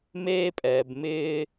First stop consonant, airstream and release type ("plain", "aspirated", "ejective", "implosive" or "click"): ejective